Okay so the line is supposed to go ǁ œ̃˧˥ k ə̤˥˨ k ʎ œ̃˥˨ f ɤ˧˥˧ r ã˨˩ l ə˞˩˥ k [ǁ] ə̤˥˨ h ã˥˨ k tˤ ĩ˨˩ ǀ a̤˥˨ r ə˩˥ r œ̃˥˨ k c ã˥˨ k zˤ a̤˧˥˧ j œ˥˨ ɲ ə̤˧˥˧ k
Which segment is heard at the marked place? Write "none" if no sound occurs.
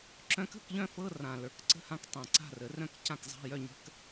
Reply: ǀ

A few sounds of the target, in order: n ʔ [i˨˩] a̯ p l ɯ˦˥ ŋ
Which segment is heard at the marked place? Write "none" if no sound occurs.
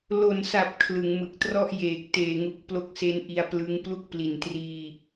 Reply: i˧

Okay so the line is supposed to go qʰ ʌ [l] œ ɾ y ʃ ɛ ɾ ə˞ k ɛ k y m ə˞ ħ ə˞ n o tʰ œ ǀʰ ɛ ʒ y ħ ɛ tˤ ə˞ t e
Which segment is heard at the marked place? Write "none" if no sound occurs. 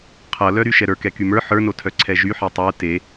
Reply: l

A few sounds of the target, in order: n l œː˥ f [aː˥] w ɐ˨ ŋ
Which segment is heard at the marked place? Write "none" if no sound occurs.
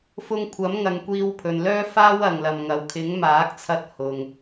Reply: aː˥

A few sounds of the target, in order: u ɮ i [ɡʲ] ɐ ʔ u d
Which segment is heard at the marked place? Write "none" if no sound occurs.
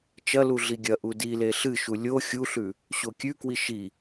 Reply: ɡʲ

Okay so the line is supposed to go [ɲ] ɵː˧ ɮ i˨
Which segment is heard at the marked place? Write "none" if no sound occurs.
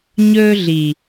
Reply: ɲ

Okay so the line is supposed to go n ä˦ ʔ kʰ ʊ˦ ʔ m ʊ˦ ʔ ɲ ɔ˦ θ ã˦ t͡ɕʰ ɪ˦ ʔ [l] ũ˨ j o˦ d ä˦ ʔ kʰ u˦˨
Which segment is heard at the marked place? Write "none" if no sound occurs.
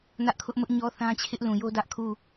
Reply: l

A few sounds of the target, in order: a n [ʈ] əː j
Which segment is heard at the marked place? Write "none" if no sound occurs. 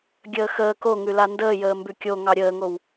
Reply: d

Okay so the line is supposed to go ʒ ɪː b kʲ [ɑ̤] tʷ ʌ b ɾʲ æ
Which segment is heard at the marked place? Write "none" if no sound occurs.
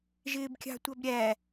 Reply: ɑ̤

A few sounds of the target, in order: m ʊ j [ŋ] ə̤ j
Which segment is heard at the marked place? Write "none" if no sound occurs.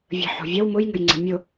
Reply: ŋ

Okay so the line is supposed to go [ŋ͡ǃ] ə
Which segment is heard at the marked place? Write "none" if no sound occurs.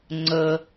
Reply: ŋ͡ǀ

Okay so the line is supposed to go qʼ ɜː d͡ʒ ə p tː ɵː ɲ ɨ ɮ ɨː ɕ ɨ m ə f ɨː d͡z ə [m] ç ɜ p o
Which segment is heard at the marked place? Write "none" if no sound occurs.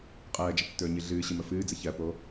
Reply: none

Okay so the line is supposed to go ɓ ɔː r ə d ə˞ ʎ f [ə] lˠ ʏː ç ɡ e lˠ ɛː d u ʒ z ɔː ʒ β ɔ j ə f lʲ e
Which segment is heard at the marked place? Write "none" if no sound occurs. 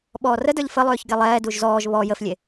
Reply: ə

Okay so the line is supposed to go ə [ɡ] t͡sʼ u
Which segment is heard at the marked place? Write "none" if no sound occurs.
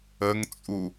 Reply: ŋ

